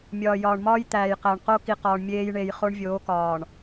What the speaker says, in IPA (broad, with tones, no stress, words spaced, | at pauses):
mʲɒː˨jɒː˨ɳmɒː˦j t̪æː˨jqæ˨ɳ qo˦ki˨qɒː˨ɳ mʲeː˦jɳe˨j χo˦ɳvʲoː˨˦kɒː˨ɳ